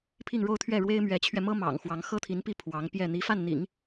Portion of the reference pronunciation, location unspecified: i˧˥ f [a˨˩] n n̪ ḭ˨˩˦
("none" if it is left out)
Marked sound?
a˥˩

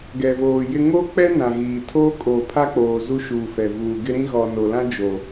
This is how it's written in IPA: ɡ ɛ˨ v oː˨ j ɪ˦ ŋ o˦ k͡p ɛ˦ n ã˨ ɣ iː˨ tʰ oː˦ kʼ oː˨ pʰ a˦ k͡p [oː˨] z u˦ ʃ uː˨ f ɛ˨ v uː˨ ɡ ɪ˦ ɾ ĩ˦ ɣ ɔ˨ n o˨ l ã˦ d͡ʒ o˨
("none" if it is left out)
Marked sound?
oː˨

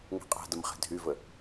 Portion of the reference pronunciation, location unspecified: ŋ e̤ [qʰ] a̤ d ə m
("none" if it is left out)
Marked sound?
qʼ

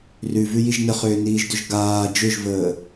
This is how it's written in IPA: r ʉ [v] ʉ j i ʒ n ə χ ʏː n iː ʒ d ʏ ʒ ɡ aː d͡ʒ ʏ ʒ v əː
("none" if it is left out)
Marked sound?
v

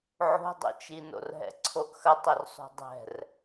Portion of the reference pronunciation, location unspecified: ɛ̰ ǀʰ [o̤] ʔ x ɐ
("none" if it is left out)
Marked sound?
o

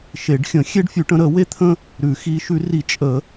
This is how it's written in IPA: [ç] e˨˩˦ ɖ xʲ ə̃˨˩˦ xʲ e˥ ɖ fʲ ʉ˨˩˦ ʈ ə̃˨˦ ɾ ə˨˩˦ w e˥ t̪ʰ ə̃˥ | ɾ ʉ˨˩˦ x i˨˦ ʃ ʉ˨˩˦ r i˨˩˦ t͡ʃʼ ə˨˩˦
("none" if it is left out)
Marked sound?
ʃ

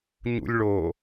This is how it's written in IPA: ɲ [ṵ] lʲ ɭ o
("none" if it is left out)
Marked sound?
ṵ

